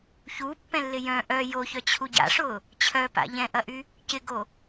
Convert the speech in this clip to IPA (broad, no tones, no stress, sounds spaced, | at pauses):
ç uː pː ɛ̃ lː ɪ j œ̃ ʔ œ j o ç œ t͡ɕʰ u ɟ a̰ ʂ ʊː | t͡ɕʰ œ p a̰ ʎ ɛ̃ ʔ ɐ ʔ y | c ɪ ɡ o